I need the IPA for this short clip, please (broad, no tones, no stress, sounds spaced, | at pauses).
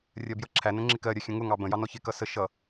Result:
rʲ ɜ b j ʌ ǁʰ æ n ə̃ ŋ͡ǁ ɪ k ɜ ɾʲ ɜ xʲ ə̃ ŋ ʊ ŋ ɑ b ə̃ j ɑ n ɔ ç ɪ k ʌ s ə ʃ ʌ